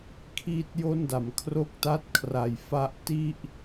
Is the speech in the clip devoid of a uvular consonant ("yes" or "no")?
yes